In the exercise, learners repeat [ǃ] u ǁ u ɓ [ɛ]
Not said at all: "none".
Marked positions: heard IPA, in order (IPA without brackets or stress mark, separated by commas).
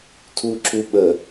tʰ, ə